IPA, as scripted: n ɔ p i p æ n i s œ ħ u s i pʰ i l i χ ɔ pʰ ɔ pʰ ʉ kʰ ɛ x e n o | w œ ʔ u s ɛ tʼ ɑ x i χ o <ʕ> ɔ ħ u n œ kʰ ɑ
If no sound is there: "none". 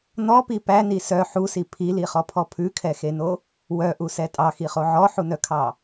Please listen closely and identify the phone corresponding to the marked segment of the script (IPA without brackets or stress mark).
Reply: ʕ